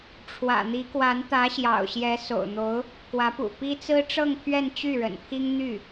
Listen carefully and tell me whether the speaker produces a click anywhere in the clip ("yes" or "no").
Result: no